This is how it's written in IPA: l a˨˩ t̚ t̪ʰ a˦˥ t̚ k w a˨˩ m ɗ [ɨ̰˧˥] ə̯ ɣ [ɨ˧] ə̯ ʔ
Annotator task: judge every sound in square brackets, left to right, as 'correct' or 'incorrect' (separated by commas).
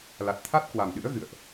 correct, incorrect